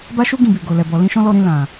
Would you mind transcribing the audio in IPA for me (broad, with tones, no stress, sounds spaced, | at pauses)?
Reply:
b a˦ ʃ u˦ ɡ ĩ˦˨ b i˨ ɡ o˨ l ɛ˨ b ɔ˨ l ĩ˧ ʃ ɔ̃˦ l ɔ˧ ɾ ĩ˧ l ã˨